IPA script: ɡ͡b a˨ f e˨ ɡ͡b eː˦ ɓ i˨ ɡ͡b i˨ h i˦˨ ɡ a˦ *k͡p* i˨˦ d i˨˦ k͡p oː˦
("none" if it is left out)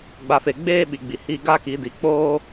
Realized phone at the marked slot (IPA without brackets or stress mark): k